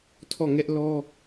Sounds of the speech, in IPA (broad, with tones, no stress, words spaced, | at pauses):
tʰɔ˦˨ŋɛ˦ʔ lɔ˦